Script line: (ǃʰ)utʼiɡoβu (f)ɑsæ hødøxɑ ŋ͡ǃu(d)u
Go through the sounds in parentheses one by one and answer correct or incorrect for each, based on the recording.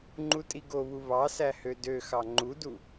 incorrect, incorrect, correct

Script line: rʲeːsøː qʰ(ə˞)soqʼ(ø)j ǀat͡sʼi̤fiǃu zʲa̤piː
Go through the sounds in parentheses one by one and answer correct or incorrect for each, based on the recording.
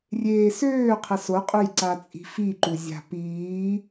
incorrect, correct

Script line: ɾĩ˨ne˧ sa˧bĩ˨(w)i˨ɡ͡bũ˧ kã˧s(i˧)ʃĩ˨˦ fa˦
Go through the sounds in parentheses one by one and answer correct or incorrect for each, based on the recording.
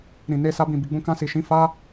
incorrect, incorrect

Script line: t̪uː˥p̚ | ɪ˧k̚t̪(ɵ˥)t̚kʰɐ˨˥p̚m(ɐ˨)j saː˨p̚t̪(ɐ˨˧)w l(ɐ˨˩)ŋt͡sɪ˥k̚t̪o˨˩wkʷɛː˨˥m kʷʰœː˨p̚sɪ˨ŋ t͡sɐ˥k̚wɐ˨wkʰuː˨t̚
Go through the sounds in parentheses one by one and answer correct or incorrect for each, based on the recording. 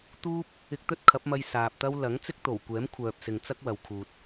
correct, incorrect, incorrect, incorrect

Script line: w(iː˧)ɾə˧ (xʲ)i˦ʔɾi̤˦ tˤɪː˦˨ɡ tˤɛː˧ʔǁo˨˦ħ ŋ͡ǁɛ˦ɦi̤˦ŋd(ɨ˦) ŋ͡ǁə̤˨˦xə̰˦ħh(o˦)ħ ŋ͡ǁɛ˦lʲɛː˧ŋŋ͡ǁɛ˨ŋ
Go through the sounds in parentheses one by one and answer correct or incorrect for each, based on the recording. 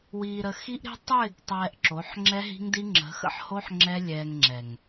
correct, incorrect, incorrect, correct

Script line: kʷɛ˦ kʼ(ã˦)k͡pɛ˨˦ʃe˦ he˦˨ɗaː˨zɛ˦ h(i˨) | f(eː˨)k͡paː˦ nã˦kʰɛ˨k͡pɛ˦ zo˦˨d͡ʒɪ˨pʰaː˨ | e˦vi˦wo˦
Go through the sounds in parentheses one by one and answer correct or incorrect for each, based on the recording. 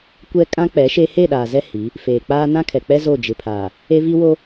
correct, incorrect, correct

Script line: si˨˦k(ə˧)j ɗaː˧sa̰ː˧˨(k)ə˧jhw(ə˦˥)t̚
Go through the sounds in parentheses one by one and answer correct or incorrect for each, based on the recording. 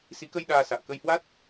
correct, correct, incorrect

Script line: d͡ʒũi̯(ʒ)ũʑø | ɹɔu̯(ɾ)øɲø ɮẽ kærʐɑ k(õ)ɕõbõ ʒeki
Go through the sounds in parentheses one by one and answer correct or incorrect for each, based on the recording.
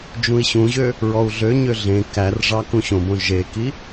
incorrect, incorrect, incorrect

